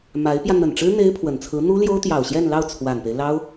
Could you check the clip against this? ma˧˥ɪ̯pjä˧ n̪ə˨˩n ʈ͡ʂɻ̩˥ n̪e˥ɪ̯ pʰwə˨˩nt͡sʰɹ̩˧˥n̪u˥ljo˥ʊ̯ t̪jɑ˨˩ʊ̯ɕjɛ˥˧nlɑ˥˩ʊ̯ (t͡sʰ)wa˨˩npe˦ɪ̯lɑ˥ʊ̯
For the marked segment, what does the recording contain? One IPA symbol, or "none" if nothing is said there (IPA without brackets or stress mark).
t͡sʰ